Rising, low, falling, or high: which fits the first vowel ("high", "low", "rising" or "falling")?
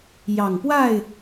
low